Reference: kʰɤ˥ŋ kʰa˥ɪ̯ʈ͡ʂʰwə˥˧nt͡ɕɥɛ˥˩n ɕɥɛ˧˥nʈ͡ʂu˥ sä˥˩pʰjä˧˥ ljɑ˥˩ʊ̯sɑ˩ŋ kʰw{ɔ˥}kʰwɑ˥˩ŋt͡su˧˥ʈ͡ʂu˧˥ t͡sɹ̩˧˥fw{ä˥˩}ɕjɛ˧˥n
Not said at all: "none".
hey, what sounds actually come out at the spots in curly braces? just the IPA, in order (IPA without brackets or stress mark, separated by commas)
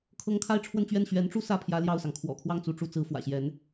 ɔ̰˨˩, ä̰˨˩